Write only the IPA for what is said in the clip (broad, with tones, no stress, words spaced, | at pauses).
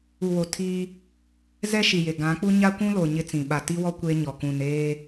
u˨wo˨ tʰiː˦ | zɛ˦ʃi˨je˨ ɡã˨˦k͡pu˦ ɲa˦kʷũ˦lo˨ ɲɪ˦t͡sĩ˨ ɓa˨ti˦wɔ˦ kʷe˦ɲɔ˨ kũ˨n eː˦